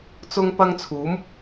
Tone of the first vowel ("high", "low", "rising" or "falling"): high